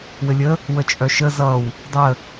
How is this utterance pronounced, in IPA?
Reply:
w ɘ lʲ ə | w ə t͡ʃʼ œ ʃ ə z ʌ w | dˤ ə

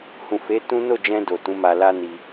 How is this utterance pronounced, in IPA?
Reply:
h ũ˨ f e˨˦ t ũ˦ n o˦˨ d͡ʒ ɛ̃˧ d o˨ t ũ˨˦ m a˧ l a˦ n i˧

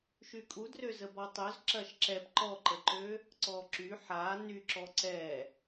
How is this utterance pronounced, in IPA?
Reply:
ʃ y kʼ u d r ø z ə b ɔ tˤ ø z ǁ ɐ ʃ ǁ ɛ p ǃ ɔ ǃ ə ǃ ø | ǀ ɔ ǁ y ħ a n y ǁ ɔ ǀ ɛ

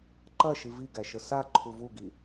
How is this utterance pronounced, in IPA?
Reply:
ǃ ɐ ʃ i v i ɡ æ ʃ ə s a ǃʰ u v u ɡ i

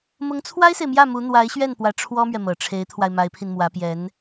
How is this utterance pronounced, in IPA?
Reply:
m ʊ˧˥ ŋ t͡sʰ w a˥ ɪ̯ s e˨ ɪ̯ m j ä˥˩ m u˧˥ n̪ w a˧˥ ɪ̯ ɕ ɥ ɛ˥˩ n p w ä˧˥ ʈ͡ʂʰ w ɔ˥ m ɥ ɛ˨ m ɤ˨˩ ʈ͡ʂʰ e˧˥ ɪ̯ t̪ʰ w a˧ ɪ̯ m a˧˥ ɪ̯ pʰ i˧ n m w ä˧˥ p j ɛ˧˥ n

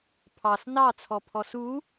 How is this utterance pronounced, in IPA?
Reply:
pʰ ɑ s n ɑ t͡sʰ ɔ pʰ ɔ s u

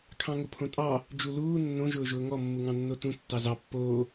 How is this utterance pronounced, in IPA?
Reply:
kʰ ɑ̃ ŋ ʊ pʰ õ tʼ ɑ | d͡ʒ u l uː nː õ ʒ ʊː ʒ ʊː ŋ ɔ mː u ŋ ɑ̃ nː o t ũ tː ɑ z ɑ pː oː

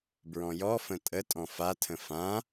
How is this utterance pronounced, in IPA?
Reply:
b ɹ ɔ̃ j ɔ f ə̃ tʼ ə tʼ ɔ̃ f a tʰ ə̃ f ã

